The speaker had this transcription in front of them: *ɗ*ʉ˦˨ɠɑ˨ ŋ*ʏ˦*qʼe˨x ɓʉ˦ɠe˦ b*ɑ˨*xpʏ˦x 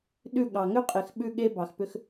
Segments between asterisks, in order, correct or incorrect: correct, correct, correct

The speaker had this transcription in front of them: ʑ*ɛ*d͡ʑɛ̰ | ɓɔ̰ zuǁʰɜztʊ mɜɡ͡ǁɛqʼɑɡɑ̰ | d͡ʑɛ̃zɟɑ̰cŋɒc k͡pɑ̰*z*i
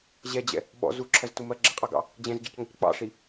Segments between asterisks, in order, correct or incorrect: correct, incorrect

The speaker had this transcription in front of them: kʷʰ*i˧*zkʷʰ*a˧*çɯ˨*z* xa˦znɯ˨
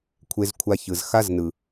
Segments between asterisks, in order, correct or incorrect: incorrect, correct, correct

